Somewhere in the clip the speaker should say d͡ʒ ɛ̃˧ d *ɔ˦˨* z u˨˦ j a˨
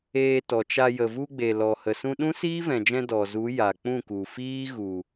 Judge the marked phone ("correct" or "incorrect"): incorrect